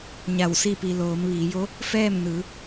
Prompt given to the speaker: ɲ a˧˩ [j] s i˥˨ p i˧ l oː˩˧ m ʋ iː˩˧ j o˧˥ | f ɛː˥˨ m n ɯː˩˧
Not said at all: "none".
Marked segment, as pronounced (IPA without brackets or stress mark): w